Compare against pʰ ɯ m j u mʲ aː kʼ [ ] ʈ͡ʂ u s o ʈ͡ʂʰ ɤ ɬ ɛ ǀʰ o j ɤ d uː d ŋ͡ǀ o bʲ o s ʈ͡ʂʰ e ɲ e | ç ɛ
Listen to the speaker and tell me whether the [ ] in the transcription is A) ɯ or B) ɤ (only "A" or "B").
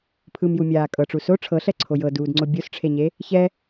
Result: B